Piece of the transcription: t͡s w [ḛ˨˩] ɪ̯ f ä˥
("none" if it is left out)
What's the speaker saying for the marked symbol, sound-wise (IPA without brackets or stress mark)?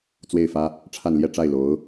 e˥˩